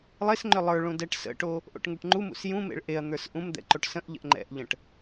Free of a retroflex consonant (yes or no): no